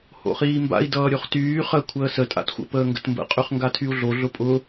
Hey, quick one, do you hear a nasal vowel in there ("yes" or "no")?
no